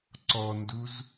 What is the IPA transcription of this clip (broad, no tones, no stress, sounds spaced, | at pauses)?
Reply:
ǀ ɔ n d u z